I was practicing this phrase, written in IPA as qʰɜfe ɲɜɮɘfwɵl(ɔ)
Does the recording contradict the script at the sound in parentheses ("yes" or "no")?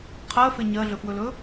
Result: yes